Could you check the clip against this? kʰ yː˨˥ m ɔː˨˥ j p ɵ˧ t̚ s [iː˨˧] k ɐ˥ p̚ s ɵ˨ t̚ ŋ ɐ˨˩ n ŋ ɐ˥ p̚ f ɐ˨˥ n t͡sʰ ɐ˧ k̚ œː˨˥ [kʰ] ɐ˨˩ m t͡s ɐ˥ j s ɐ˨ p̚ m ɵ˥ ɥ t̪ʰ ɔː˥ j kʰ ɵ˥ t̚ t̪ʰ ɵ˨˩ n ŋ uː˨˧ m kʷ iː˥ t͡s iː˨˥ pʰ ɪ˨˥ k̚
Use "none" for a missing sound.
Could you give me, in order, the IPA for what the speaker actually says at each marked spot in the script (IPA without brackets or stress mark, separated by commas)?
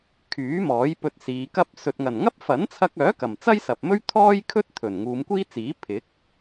iː˨˧, k